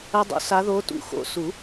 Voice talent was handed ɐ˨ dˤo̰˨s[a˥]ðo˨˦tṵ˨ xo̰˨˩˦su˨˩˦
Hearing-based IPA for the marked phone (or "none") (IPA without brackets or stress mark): a˨˦